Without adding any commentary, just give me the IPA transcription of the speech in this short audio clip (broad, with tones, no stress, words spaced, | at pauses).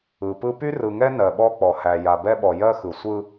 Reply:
ɯ˨pɯ˦ py˦rɯ˨ŋɛ˦ nɜ˨ɓɔ˦k͡pɔ˨hæ˨ ja˨bɛ˦ɓɔ˨ jɜ˦xɯ˨sʷɯ˦